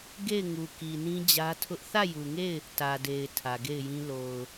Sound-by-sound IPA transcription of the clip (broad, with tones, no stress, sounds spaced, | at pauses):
ɡ e˦˨ ɪ̯ ŋ u˨ k i˨ n ĩ˦ d͡ʑ ä˦ tʰ ʊ˦ ʔ θ ä˦˨ j u˨ ŋ e˦˨ ɪ̯ | t ä˨ d e˨ ɪ̯ tʰ ä˨ ɡ e˦˨ ɪ̯ j ĩ˦ l o˨ ʊ̯